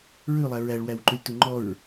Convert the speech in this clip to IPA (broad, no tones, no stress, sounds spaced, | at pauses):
ɹ ʉ lˠ æ ɹ æ ɭ w æ w ǃ ʉ lʲ t u ŋ͡ǃ ɔ ɹ